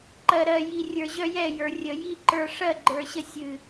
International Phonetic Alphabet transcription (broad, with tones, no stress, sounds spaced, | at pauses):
ǃ ɜ˨ ɾ ɜ˨ j i˨ rʲ ə˞˨ ʑ œ˧ j ɛ˦˨ j ə˞˨ rʲ ə˨ j i˦ ǃ ə˞˧ ʂ ɜ˦˨ ɡ͡ǃ ə˞˨ ɕ ə˧ sʲ ɨ˨